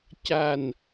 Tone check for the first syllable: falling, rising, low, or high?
low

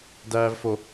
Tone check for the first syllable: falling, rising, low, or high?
low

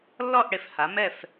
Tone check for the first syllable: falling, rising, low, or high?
falling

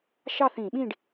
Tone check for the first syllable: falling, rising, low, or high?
falling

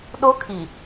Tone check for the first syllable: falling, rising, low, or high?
high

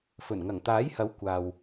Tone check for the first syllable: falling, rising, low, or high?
low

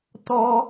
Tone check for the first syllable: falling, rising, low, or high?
high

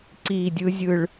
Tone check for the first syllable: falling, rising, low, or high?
low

